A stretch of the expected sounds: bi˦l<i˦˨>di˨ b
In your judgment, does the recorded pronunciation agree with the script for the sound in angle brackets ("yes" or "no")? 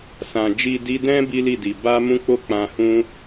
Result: yes